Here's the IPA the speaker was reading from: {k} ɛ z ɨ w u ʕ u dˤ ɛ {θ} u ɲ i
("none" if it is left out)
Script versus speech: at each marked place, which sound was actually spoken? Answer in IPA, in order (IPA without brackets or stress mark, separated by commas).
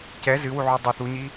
c, θ